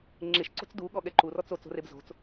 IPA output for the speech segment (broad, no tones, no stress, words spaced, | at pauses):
ŋ͡ǁeʃ ǀo̤t͡sduɠɔ ɠɛǃurɔt͡s ot͡so̤reb zo̤t͡s